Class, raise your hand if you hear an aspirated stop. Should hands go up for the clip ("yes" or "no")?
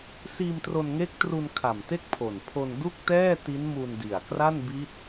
yes